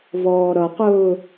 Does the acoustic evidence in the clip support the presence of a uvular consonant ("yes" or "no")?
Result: yes